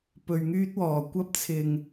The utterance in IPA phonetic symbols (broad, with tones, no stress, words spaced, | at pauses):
pɵ˧ɥŋyː˥t̚wɔː˨ kʷɐ˥p̚t͡sʰɪ˧ŋ